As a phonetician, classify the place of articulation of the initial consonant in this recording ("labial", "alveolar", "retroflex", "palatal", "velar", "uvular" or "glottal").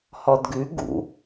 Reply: glottal